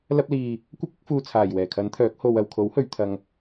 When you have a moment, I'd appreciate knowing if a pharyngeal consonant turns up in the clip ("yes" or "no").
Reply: no